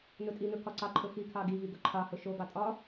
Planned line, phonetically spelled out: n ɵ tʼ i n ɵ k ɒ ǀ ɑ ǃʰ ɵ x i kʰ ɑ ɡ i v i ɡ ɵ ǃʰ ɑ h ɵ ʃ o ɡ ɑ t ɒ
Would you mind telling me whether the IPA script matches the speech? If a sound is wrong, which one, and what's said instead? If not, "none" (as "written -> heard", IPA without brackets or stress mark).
t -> tʼ